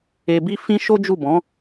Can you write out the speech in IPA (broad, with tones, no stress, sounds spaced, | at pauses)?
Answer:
e˧ b i˦ f ĩ˦ ʃ o˦ d͡ʒ u˦˨ b ɔ̃˨˦